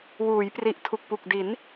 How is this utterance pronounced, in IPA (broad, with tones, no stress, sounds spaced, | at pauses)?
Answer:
w uː˩˦ j p r i˨˩ ʔ tʰ u˨˩ k̚ p u˨˩ k̚ d i˩˦ n